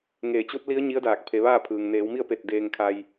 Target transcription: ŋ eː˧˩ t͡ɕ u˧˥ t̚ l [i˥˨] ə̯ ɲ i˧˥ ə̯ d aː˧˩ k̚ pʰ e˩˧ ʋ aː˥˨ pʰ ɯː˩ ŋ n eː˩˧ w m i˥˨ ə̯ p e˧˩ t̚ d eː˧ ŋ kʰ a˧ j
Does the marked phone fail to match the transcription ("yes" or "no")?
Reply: yes